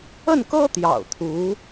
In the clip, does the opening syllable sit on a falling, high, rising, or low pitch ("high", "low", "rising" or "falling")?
falling